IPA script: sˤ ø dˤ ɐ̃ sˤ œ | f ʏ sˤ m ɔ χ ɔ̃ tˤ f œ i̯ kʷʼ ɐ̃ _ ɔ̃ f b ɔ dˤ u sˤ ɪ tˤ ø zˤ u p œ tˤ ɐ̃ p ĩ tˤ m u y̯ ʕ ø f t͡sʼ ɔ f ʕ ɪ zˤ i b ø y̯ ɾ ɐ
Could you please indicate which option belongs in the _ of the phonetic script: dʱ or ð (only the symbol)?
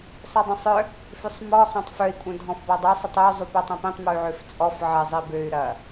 dʱ